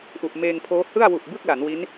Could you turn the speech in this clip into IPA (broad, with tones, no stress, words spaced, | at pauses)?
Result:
ʔu˨˩ʔmeː˧ŋpʰoː˦˥ hɯ˥˩a̯wu˨˩ʔ bɯ˥˩k̚la˩˦n wi˦˥n